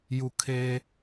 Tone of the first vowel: falling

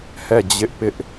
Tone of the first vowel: falling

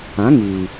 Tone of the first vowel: rising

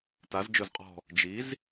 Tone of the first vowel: rising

